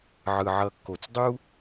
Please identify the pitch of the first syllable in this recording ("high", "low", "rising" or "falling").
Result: low